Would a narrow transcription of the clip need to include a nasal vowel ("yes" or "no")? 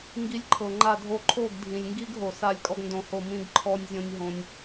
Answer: yes